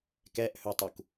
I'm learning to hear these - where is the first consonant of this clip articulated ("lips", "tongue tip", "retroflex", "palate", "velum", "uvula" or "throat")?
velum